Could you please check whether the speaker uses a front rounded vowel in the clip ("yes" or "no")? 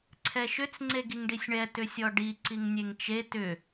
yes